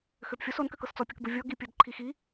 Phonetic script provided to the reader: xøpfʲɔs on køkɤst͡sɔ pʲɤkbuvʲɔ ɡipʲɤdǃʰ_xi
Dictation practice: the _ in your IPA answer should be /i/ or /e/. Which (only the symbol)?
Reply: i